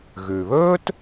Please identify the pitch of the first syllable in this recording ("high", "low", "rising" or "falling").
low